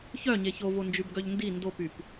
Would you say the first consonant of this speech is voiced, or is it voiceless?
voiceless